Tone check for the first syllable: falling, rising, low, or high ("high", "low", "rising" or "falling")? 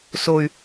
low